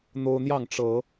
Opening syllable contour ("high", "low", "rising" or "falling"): high